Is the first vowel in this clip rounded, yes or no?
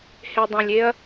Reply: no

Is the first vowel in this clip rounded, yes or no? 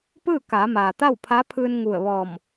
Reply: no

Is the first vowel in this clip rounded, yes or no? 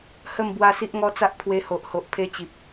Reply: no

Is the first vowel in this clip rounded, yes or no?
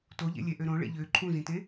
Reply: yes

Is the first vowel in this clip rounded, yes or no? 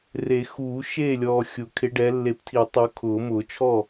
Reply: no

